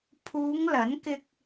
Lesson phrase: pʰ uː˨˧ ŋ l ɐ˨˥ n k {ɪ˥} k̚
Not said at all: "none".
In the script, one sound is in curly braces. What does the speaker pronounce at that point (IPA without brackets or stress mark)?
ɪ˧